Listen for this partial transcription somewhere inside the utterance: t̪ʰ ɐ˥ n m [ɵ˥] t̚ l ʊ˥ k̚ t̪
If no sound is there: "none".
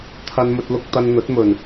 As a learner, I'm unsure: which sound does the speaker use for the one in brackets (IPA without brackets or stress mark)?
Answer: ɵ˥